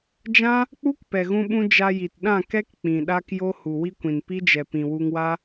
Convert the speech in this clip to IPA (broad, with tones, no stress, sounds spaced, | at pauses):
d͡ʒ ã˦ | k͡p u˦ k p ɛ˨ ɣ ũ˧ ɓ ũ˧ d͡ʒ a˧ j i˨ t ɗ ã˦˨ k ɛ˦ k k͡p ĩ˨ ɗ a˦ k j o˦ h u˨ w i˦ kʷ ĩ˨ n p i˦ d͡ʒ ɛ˨ p ĩ˨ w u˧ ŋ w a˦